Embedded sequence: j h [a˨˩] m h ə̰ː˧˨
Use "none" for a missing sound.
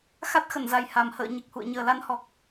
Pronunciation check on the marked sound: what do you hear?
a˨˩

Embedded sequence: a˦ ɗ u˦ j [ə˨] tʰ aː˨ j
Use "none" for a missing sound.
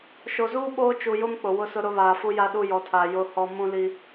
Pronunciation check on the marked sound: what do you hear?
ɔ˨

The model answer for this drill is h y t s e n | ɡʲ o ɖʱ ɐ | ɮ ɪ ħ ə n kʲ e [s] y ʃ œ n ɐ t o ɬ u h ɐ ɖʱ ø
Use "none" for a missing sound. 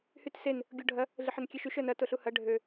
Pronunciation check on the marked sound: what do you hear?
ʃ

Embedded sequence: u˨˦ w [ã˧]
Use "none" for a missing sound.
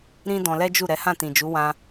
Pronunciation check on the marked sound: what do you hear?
ã˧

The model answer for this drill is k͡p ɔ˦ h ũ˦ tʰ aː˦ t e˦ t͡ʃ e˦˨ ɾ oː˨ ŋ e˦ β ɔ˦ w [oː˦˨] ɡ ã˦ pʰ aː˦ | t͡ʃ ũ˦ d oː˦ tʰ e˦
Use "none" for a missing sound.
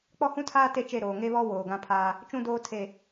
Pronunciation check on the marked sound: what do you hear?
oː˨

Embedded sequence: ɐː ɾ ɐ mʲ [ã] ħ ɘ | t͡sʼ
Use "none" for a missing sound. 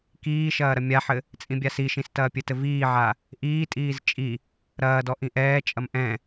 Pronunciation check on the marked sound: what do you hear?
a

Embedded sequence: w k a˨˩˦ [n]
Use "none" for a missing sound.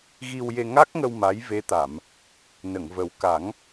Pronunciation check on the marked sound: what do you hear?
ŋ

